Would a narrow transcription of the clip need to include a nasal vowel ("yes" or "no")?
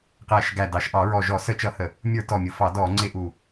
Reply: no